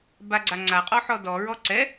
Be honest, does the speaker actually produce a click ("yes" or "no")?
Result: yes